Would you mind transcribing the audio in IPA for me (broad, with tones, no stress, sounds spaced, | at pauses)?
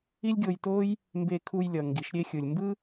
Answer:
i˦ lʲ ɡʲ o˧ j t o˦ j | m b e˧ kʰ u˧ j lʲ ʌ˨ ŋ ɡ i˨ ʃ ɾʲ e˧ xʲ ɯ˨ lʲ m b ɯ˦